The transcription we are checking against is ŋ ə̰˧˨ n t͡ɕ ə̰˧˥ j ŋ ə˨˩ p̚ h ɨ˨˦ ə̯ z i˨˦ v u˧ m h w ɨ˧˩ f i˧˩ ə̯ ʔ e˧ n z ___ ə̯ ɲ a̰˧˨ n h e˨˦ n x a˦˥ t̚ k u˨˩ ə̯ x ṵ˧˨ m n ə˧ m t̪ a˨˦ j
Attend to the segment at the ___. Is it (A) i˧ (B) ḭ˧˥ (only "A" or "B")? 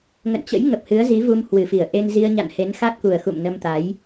A